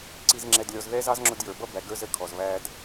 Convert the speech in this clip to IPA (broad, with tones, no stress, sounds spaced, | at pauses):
ǀ i˨ z ŋ͡ǁ ɛ˨ d lʲ ɔ˨ z ð ɛ˦ z ɑ˦ z ŋ͡ǁ ʊ˦ d j ə˞˨ b ʌ˦ b æ˨ ɡ ə˞˦ z ə˨ kʰ ɔ˨ z β æ˦ d